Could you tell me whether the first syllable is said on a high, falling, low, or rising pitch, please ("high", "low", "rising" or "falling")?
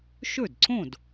falling